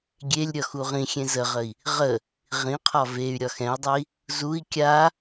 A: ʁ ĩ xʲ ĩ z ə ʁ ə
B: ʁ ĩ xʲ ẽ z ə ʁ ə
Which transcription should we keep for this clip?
B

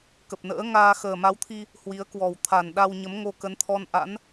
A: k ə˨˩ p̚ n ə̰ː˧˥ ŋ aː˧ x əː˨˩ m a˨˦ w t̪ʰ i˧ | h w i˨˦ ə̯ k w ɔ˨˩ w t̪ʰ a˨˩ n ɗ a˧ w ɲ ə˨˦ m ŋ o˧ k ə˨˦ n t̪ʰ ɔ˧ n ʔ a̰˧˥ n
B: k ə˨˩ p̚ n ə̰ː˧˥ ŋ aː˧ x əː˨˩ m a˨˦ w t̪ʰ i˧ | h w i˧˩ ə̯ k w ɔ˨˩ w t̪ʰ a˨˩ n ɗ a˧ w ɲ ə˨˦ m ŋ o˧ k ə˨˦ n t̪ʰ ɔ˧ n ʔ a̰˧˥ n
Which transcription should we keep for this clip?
A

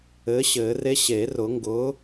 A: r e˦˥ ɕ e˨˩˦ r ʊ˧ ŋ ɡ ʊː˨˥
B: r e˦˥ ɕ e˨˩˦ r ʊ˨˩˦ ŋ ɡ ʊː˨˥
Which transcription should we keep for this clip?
B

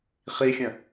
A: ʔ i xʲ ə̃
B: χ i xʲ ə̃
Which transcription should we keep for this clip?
B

